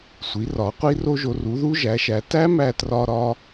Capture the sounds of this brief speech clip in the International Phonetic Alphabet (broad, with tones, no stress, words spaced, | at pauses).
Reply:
sʷi˩˥rɒ˩˥ qʷi˦˥ro˦˥ʒo˩˥ ru˩˥ðu˦˥ʒæ˩˥ʃæ˩˥ tæ˦˥ mæ˦˥trɒ˦˥ɾɒ˦˥